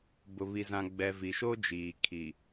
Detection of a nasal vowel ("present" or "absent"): present